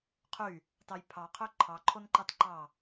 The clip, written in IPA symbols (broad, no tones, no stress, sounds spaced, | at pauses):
qʰ y | t ɑ j pʰ ɑ qʰ ø ǃʰ ɑ ǃʰ o n ǃ ɑ t ǃ ɑ